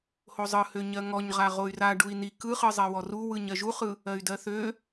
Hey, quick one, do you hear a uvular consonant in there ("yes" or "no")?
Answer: yes